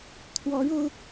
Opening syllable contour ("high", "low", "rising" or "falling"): rising